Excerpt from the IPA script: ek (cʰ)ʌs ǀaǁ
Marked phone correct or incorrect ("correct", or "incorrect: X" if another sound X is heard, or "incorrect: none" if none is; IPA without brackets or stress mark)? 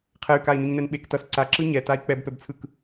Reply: incorrect: t